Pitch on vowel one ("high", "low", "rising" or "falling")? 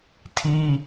high